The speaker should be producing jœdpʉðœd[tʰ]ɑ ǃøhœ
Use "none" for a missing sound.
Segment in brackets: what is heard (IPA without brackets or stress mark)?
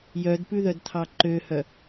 tʰ